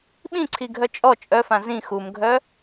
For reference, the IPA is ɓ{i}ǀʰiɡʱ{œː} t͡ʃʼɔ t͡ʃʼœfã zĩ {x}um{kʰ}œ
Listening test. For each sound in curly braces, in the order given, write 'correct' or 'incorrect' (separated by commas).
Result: incorrect, incorrect, correct, incorrect